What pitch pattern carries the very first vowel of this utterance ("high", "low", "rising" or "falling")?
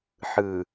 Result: low